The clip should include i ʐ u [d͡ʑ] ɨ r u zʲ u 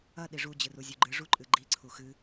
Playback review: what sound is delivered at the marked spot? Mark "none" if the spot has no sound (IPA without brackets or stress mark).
d͡ʑ